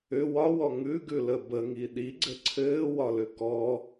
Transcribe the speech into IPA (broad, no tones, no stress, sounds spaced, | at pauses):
ʏ w ɒ w ɔ ŋ ʉ ɡ ʉ l ə b ə ŋ i ɗ i ɡ͡ǀ ɘ ǀʰ ɘː w ɒ l ʏ k ɔ